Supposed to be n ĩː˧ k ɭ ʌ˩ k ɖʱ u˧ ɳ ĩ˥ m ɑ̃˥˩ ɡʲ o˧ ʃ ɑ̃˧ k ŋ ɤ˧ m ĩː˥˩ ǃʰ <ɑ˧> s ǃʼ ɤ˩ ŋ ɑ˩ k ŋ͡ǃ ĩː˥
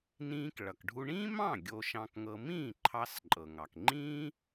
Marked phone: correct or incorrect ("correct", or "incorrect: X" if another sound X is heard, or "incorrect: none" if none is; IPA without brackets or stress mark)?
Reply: correct